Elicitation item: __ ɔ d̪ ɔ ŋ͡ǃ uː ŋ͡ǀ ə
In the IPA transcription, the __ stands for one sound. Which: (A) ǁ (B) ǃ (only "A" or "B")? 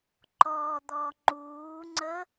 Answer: B